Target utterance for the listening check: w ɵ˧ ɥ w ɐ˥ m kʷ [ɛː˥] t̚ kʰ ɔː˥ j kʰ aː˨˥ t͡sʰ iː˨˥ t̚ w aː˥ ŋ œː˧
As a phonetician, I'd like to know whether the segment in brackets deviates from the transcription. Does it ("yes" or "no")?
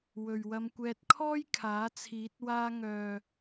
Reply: no